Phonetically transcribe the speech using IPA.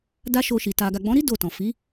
d a˦ ʃ o˧ ʃ i˨ t a˨ ɡ a˨ ɡ͡b ɔ̃˨˦ ɾ i˦ d o˦˨ t ɔ̃˨ f i˨˦

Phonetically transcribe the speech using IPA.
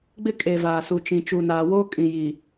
ɡ͡b ɪ˦ kʼ e˨ v aː˨ s u˨ t͡ʃ ĩ˨ t͡ʃ u˨ n aː˨ w oː˦ kʼ ĩ˨ j i˨

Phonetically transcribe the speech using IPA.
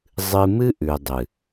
zˤ ɨ˧ m ɨ˦ ʔ ʉ˨ dˤ ɨ˨

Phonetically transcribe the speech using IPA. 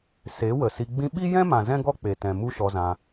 s e˨˦ w ə˨ s i˧ ɡ͡b ĩ˧ ɓ i˦ j ɛ̃˦ m ã˨ z ɛ̃˦ ɡ ɔ˦ k͡p e˨ t ɛ̃˨ m u˦ ʃ ɔ˧ z ã˧

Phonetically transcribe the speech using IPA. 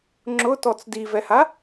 ŋ͡ǁ ʊ t ɔ t͡s d i v ɛ h a

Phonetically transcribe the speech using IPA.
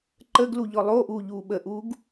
ǃ ə ɡ l u ʎ ɔ lˠ o ʔ uː ʎ uː ɓ ə ʔ uː ɡ

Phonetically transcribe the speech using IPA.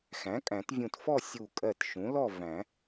x æ̃˩˥ kʼ æ̃˨˩˦ t vʲ ũ˧˩ t f ɔ˥˨ sʲ u˧˩ kʼ ɜ˧˩ t ʃ ũ˩˥ l ɔ˥˨ v æ̃˨˩˦

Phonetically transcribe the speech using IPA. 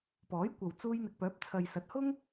p ɔː˨˥ j kʷ ɐ˨ w t͡s uː˧ j n̪ ɪ˨ k̚ p œː˨˥ p̚ t͡sʰ ɐ˨ j s ɐ˨˥ t̚ h ʊ˥ ŋ

